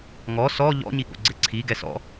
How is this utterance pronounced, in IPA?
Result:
ŋ ɔ s ɔ ʎ ɔ̰ ɲ i ɠ o̰ ɡ͡ǀ ɘ ǀʰ i ɡ ɛ s ɔ̰

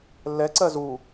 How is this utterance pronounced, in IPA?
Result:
lː ɛ ǀ ɜ z u

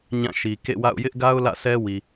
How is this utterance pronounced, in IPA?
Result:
ɲ ã˦˨ ʃ i˨ k ḛ˦˨ w a̰˦˨ ʊ̯ j ɪ˦ ʔ ɡ a˦ ʊ̯ l ä̰˦˨ sʰ ɛ˦ w i˨

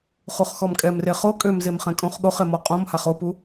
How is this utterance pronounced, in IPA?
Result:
χ u χ x ɔ m kʼ ɛ m r e χ o kʼ ø m z e m χ ɛ̃ kʼ õ χ ɠ o χ e m ɔ qʼ õ m h a χ o p u

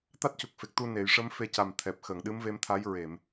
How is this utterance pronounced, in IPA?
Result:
t̪ a˦˥ t̚ c u˨˩ k̚ f e˨˩ k̚ t̪ u˧ n e˨˩˨ j ʂ ə˧˥ m f e˧ c a˨˩ m t̪ʰ ɛ˨˩ p̚ x ə˨˩˨ ŋ ɗ ɨ˧˥ m v e˧˥ m t̪ʰ a˧˥ j ɹ e˨˩˨ m

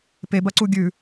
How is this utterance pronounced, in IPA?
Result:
p e b ɐ ǀ u ɡʲ ʉ

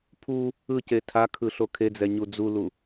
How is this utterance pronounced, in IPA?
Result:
pʰ u | ɯ c e tʰ a kʰ ɯ ɬ o kʰ e d͡z ɛ ɲ u d͡z u l u

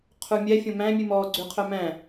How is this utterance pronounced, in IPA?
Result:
qʰ u mʲ ɛ fʲ õ m æ̃ mʲ ʉ m ɔː ɡ͡ǀ ʉ qʰ œ m æ̃

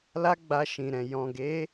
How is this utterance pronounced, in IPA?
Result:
l a˦ ɡ͡b a˧ ʃ ĩ˨ ɾ ɛ̃˨ j ɔ̃˨ ɡ e˨˦

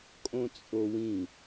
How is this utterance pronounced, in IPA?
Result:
kʼ õ t͡sʼ o w ĩ

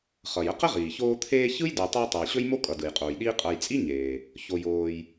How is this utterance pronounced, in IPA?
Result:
χ ʌ˩ j ə˦ q ə˥ ʁ iː˩ ç oː˦ t̪ʰ eː˦ ç ɯ˥ j d ɯ˨ j tˤ e˦ j tˤ o˩ j ɕ ɵ˥ j m o˥ kʼ ʌ˩ d ɯ˩ j qʼ oː˩ j ɗ iː˦ qʼ ʌ˨ j t͡sʼ i˥ ɲ eː˩ | ç o˨ j oː˨ j

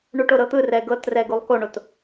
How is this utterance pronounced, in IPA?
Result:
ɳ u ʈ o ɾ ɤ t̪ ɯ r ɛ ɡ ɤ t r ɛ ɡ u lˠ k o ɳ o t

